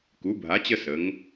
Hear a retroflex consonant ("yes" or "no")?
no